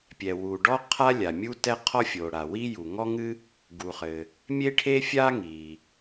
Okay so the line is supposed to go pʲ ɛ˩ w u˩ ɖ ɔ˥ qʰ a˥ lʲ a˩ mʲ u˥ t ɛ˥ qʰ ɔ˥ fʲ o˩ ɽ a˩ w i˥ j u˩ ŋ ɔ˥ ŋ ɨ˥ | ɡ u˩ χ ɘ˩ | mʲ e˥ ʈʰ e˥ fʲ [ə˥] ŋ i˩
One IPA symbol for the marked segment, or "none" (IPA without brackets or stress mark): a˥